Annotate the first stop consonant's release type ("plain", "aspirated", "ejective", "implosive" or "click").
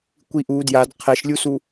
plain